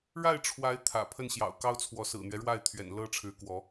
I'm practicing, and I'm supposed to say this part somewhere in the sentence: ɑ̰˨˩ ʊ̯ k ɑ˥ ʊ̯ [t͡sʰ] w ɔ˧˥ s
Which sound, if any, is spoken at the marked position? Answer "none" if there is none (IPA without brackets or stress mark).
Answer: t͡sʰ